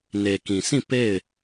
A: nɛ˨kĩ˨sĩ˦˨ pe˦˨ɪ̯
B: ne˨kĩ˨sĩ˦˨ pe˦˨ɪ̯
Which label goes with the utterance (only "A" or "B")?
B